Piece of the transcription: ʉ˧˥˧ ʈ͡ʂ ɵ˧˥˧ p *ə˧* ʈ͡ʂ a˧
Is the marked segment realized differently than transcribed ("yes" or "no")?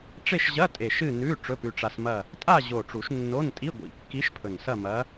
yes